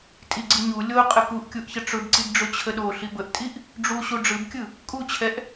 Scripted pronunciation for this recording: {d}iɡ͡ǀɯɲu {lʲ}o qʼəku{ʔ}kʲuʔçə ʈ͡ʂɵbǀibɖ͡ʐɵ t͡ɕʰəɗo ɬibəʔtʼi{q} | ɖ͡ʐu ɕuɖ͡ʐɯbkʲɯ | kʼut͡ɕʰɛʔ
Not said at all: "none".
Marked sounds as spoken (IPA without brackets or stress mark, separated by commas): tʼ, lʲ, ʔ, ʔ